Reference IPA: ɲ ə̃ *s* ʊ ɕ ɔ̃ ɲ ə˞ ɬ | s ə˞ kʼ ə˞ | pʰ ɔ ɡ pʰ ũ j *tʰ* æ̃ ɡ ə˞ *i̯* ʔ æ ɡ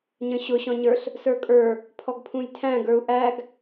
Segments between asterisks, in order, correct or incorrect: incorrect: ɕ, correct, incorrect: u̯

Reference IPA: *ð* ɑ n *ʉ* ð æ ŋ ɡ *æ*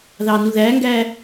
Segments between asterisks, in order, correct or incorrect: correct, incorrect: u, incorrect: æː

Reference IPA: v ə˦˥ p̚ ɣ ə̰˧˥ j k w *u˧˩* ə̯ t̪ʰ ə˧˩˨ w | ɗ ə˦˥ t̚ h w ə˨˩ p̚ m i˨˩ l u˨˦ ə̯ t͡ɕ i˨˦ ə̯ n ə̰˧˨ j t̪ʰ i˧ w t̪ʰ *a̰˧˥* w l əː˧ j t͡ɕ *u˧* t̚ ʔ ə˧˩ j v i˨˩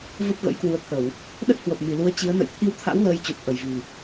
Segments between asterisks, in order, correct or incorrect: incorrect: u˨˦, correct, incorrect: u˨˩

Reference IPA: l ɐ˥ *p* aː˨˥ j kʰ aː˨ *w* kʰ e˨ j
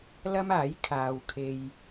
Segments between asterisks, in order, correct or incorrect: incorrect: m, correct

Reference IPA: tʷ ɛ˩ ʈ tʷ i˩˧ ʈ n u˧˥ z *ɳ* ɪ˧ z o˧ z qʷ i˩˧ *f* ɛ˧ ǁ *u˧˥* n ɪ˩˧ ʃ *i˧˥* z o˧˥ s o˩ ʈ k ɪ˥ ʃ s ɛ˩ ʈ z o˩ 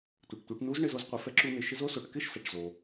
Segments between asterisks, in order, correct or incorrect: correct, correct, incorrect: u˧, incorrect: ɪ˧˥

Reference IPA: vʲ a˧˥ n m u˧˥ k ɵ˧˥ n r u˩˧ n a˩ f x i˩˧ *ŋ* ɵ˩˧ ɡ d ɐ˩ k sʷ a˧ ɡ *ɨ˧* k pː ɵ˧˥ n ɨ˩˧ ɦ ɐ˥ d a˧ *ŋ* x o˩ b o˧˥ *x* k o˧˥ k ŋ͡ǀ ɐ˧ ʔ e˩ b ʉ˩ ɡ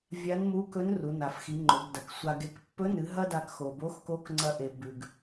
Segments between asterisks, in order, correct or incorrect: incorrect: ŋ͡ǃ, incorrect: e˧, incorrect: k, correct

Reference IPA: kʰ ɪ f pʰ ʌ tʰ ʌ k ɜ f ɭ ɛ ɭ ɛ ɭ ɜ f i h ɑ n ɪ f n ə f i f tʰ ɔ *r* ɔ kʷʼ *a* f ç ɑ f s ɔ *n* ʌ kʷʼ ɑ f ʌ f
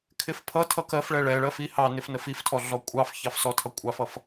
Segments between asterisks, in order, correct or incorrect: incorrect: ɮ, incorrect: ɑ, incorrect: tʰ

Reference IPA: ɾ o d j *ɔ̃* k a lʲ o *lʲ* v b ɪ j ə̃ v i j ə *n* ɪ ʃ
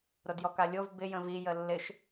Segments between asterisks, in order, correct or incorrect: incorrect: ɔ, incorrect: none, incorrect: lː

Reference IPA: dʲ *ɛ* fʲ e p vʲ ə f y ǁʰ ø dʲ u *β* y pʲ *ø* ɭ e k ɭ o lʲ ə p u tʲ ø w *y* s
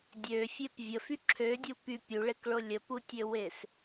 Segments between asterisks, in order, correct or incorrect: incorrect: ø, incorrect: p, incorrect: u, incorrect: e

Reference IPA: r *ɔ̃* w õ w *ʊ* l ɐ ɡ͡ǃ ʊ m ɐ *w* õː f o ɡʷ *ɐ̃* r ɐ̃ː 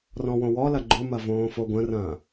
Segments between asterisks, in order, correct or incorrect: correct, incorrect: ɔ, incorrect: v, incorrect: ə̃

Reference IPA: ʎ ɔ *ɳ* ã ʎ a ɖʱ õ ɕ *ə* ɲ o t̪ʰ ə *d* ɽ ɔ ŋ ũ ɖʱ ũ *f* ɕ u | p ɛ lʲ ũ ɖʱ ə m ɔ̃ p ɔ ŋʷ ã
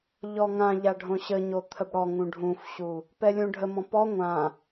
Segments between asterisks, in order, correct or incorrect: incorrect: ŋ, correct, incorrect: b, correct

